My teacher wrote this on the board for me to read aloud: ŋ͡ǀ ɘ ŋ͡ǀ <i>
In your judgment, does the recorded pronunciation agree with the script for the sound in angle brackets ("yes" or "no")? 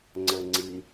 yes